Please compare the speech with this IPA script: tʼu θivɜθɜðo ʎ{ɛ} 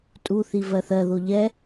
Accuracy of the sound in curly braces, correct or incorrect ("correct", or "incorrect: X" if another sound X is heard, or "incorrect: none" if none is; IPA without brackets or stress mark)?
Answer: correct